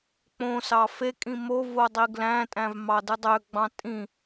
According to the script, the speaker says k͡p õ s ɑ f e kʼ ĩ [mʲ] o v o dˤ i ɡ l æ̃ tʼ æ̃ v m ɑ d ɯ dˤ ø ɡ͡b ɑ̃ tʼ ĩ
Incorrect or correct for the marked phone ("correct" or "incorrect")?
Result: incorrect